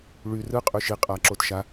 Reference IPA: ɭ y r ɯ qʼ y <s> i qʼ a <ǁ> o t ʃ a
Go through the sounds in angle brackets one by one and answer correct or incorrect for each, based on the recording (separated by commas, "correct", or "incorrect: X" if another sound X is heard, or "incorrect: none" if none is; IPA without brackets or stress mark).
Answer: incorrect: ʃ, correct